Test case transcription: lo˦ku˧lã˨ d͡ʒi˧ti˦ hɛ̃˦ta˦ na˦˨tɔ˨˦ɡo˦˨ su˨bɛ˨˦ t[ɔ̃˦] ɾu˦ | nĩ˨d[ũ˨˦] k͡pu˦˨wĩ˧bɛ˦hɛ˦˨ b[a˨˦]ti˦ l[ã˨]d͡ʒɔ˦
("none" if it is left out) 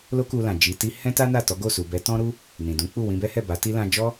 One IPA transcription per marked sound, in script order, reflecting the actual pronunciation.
ɔ̃˦, ũ˨˦, a˨˦, ã˧

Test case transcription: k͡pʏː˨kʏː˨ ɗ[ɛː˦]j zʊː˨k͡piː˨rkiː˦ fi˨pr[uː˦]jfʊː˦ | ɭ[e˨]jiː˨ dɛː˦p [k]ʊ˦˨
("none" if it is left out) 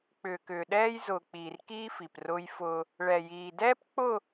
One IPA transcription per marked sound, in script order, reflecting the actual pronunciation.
ɛː˦, ʊː˦, ɛ˨, k͡p

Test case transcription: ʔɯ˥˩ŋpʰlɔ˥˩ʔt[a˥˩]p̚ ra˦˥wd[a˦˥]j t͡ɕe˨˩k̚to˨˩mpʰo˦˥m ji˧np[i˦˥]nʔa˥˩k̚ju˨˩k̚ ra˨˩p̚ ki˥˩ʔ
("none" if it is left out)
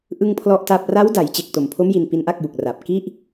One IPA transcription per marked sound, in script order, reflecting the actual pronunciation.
a˥˩, a˩˦, i˦˥

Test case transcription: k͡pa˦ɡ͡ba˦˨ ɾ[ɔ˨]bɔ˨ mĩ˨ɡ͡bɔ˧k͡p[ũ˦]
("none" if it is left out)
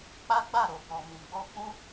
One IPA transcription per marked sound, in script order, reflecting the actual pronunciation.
o˨, ũ˦

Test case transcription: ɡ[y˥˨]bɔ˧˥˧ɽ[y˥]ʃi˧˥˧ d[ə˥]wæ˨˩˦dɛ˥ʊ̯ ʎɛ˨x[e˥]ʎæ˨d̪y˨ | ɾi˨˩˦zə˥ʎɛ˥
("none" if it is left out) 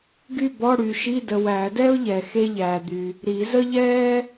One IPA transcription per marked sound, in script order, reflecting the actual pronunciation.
y˥˨, y˨, ə˨, e˥

